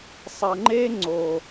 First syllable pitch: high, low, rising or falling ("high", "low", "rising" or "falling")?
low